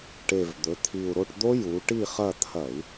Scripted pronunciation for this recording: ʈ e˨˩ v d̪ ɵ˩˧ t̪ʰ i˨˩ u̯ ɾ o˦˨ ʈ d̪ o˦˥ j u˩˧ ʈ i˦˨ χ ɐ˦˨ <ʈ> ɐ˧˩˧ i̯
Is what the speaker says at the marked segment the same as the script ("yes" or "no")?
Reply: no